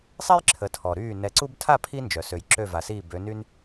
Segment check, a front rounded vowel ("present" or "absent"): present